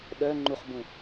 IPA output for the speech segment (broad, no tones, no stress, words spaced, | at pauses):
ɗœ ŋ͡ǃuχbũ